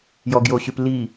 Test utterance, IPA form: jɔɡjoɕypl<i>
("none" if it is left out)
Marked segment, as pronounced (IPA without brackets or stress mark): i